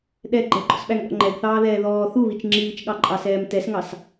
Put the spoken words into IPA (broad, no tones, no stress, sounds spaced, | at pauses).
ɗ ɛ ɡ͡ǃ ɛ ɡ͡ǃ ɔ̰ s ɓ æ ŋ ɠ ɔ̰ ŋ͡ǃ ɛ ɡ θ ɑː ð ɛː ð ɔː θ u β i t͡ʃ ŋ͡ǁ iː t͡ʃ ɠ ɑ ǃʼ ɑ s ɛː m t ɛ s ŋ ɑ s